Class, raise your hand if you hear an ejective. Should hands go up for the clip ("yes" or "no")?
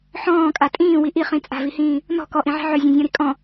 yes